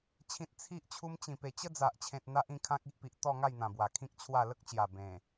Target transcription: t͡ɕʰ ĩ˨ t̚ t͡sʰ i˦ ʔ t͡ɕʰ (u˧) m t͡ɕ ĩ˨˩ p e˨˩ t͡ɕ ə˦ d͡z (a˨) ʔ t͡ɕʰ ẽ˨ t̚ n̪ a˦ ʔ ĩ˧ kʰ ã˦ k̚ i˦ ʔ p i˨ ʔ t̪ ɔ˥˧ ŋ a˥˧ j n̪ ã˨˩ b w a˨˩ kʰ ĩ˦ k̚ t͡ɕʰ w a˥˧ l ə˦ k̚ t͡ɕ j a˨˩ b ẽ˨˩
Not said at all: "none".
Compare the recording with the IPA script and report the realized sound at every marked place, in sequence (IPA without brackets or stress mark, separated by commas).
u˧, a˨